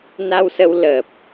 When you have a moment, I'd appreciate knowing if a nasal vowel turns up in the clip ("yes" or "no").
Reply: no